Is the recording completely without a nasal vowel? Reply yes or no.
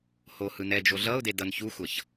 yes